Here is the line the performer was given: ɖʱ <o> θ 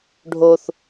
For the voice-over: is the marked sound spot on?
yes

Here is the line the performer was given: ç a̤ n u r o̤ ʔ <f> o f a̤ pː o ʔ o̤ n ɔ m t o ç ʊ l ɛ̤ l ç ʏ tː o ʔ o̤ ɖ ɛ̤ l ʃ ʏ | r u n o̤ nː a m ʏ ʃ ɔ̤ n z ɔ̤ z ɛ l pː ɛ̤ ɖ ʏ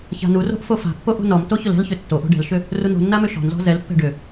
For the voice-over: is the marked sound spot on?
yes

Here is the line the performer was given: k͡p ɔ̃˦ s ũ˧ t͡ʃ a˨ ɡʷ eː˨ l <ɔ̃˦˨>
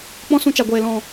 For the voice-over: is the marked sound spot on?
no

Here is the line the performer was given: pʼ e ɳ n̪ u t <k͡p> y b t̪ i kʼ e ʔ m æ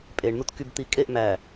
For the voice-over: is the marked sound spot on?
no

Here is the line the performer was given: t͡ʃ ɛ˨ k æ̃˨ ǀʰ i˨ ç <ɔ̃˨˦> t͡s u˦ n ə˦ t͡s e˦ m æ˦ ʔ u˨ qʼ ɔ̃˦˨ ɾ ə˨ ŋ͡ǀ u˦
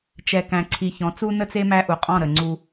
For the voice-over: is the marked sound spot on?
yes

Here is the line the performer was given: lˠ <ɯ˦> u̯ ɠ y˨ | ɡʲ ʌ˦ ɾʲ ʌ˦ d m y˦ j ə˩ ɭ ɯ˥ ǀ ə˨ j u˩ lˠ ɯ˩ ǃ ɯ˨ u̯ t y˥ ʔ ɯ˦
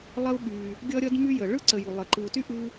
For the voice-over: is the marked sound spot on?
no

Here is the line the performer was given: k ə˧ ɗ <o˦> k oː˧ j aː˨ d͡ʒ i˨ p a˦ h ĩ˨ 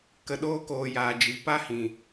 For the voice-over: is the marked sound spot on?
no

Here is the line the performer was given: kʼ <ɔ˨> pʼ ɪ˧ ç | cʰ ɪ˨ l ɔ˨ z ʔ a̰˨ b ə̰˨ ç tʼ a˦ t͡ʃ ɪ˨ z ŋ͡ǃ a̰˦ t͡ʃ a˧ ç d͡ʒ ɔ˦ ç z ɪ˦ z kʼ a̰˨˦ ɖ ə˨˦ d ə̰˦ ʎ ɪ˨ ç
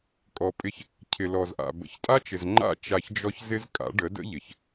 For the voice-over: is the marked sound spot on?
yes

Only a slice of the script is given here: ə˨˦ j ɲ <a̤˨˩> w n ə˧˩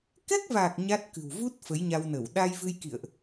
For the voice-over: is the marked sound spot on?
no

